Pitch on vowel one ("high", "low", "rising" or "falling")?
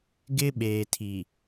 high